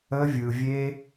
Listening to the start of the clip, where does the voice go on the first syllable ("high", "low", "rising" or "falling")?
high